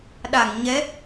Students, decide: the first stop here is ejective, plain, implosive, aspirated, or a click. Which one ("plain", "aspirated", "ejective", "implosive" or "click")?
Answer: implosive